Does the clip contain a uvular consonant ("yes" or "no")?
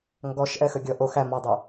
no